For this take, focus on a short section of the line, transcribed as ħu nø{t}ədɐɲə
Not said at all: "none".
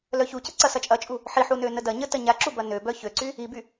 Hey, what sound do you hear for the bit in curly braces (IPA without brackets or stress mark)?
n